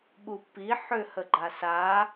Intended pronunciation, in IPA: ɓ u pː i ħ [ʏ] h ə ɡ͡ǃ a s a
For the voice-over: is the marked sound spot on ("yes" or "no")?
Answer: yes